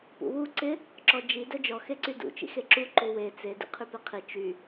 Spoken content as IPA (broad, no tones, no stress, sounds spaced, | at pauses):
p ṵ w u ǀ ɪ | ǁ ɔ d͡ʒ i d œ d͡ʒ ɔ x e ǀ y d ṵ t͡ʃ ḭ x e ǁ u ǃ u w e t͡s e d ḭ qʰ y p e qʰ i t͡ʃ y